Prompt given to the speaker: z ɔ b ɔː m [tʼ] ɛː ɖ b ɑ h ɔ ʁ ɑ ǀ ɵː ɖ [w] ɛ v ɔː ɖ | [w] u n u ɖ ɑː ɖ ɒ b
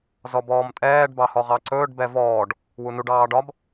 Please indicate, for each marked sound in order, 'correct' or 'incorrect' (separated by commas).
correct, incorrect, correct